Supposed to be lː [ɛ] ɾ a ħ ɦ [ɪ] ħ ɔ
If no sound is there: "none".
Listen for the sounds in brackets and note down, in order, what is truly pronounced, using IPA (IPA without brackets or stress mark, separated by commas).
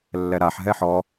ɛ, ɛ